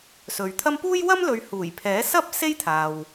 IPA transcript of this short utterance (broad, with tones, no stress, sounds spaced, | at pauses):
s ɵ˨ ɥ t̪ʰ ɐ˥ m p uː˥ j w ɐ˥ m l ɵ˨˧ ɥ h uː˨˩ j pʰ ɛː˨˥ s ɐ˥ p̚ s e˥ j t̪ʰ aː˨ w